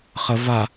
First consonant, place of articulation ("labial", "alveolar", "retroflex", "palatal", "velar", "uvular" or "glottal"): uvular